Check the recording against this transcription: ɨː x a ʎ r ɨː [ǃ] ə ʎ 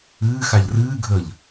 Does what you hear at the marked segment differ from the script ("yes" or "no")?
yes